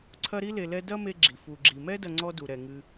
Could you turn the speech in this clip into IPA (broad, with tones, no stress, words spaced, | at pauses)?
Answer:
ǀʰɐ˦ɾi˥le˨lɛ˦ dɐ˥ me˦ɡ͡ǁi˩ fu˩ɡ͡ǁi˩mɛ˥dɐ˨ ŋ͡ǀɔ˥du˩ ɾɛ˩ŋɨ˨